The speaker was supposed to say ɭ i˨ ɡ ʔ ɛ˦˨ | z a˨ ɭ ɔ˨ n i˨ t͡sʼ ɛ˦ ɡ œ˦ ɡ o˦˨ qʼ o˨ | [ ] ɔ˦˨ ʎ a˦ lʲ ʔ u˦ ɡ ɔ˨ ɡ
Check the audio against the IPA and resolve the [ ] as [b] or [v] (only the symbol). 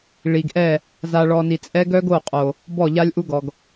b